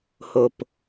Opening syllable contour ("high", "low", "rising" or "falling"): low